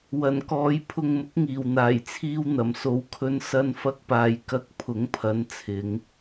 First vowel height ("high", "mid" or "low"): low